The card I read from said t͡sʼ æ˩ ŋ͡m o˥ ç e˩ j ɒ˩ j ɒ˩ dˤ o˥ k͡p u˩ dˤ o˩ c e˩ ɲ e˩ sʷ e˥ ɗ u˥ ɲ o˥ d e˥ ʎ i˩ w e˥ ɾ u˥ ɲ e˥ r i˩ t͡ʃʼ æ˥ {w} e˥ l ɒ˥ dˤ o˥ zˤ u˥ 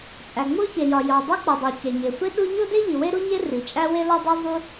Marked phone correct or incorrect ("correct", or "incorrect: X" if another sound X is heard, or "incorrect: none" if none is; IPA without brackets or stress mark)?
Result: correct